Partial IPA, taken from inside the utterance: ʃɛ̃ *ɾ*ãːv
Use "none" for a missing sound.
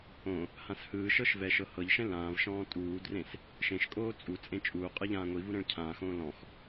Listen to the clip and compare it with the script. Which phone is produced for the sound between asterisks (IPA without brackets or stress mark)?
l